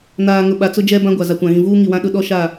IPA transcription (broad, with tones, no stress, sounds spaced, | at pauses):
n aː˨ ŋ ʊ˨ ɓ a˨ t͡s ʊ˦ d͡ʒ ɛ˦ b ã˦ ɡʷ a˨ z a˨ kʷ ã˨ ɣ ĩ˨ v uː˦ ŋ i˨ w ã˦ ɗ ʊ˦ ɗ ɔ˦ ʃ a˦˨